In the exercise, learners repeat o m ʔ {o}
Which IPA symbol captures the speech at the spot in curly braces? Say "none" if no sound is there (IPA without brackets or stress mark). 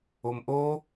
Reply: o